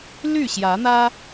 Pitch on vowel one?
falling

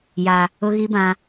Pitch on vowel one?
high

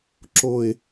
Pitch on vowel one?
low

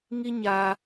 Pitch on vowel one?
high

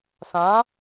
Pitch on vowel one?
rising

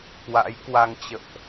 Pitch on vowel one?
rising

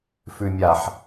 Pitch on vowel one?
low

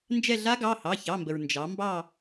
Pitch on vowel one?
falling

